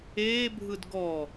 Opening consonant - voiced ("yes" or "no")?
yes